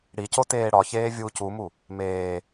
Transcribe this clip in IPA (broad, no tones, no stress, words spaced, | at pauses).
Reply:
ɽico teːɽɒçeː vʲuːcumu | meː